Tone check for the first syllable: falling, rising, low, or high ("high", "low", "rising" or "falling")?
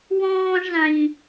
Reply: high